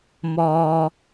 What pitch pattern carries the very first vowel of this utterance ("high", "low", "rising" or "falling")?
low